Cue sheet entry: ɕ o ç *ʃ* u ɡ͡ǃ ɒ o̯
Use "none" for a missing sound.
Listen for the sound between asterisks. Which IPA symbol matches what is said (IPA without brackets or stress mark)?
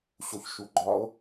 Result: ʃ